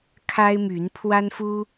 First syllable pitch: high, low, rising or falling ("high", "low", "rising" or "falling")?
high